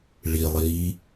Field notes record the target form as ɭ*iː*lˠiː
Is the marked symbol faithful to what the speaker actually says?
no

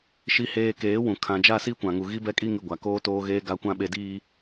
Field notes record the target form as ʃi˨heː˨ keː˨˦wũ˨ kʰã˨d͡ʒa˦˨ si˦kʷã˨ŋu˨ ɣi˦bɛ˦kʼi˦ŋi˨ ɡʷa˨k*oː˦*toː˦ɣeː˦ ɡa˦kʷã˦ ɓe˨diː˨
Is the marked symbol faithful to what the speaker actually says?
yes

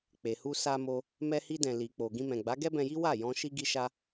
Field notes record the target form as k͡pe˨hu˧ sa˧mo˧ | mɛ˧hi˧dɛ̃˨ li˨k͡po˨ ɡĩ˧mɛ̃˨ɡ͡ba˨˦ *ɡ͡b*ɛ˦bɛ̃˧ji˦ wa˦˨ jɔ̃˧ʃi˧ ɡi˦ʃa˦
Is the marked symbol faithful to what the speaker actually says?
no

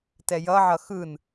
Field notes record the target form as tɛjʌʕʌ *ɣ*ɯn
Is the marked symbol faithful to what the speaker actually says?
no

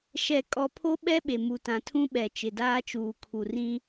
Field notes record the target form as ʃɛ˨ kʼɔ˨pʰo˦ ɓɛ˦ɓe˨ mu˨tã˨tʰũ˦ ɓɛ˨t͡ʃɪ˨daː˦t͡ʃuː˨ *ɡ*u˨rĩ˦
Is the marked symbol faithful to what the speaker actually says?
no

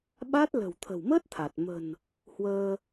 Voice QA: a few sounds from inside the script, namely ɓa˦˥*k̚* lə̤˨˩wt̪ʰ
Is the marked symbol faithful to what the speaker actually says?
no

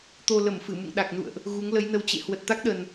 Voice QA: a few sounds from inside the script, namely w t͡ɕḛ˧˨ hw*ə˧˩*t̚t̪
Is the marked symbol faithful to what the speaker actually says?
no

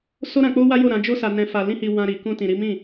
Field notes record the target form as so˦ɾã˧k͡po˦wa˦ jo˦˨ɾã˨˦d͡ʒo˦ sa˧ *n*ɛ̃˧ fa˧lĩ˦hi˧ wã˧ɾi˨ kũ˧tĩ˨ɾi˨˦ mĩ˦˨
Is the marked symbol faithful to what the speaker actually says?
yes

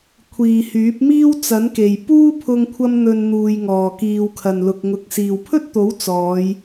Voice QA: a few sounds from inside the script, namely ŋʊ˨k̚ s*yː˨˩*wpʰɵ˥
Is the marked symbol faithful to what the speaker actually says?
no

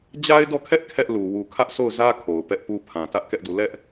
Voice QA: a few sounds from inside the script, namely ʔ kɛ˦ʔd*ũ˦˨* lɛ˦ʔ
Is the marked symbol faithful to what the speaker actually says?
no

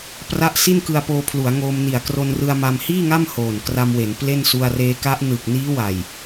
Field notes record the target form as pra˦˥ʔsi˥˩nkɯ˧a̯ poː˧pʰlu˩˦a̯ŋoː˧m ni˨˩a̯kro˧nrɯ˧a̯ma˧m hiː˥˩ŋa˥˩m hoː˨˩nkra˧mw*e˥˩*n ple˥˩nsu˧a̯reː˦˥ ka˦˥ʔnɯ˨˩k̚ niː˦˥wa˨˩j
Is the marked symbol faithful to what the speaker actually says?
no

